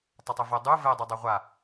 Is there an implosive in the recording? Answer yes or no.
no